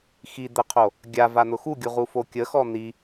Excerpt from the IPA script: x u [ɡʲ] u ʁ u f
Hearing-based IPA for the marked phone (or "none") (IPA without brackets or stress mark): ɡʲ